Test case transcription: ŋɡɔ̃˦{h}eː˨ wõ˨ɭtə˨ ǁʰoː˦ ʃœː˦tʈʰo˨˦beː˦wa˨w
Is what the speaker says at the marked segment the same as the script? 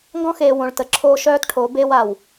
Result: no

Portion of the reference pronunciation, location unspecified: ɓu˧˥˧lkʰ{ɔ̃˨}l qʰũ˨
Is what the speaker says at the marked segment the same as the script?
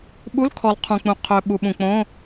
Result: no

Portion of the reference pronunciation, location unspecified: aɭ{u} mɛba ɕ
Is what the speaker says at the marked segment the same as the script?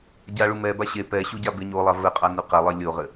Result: yes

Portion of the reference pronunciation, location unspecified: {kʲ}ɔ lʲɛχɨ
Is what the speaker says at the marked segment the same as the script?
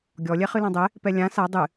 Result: no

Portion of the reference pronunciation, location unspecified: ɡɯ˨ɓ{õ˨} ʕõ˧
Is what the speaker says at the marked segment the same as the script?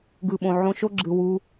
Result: yes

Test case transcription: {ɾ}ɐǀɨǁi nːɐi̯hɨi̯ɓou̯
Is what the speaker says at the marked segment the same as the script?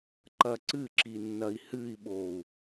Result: no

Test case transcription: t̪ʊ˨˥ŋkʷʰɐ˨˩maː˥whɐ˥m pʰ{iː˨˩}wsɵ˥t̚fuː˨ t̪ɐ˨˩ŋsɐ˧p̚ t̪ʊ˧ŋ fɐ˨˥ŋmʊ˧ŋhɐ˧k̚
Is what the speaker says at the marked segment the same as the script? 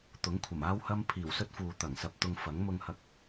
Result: yes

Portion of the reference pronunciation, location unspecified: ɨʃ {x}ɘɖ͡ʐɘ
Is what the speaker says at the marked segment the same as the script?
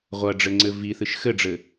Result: yes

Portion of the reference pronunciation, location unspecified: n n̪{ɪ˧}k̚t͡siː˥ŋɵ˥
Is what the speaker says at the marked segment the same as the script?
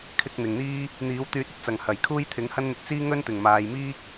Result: yes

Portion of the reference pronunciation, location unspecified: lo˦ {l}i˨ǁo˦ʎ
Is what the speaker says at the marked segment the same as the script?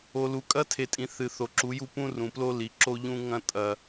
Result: yes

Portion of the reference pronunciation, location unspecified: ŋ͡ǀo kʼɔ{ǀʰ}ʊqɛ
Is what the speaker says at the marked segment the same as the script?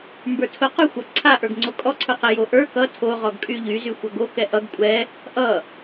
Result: yes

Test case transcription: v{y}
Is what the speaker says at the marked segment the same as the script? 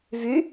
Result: yes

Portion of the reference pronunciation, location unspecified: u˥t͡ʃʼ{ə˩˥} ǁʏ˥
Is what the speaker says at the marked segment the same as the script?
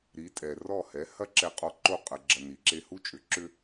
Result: no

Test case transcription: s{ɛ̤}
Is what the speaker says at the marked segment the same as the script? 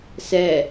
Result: no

